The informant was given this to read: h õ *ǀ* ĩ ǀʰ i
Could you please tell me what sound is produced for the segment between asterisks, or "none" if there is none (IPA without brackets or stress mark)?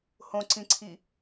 ǀ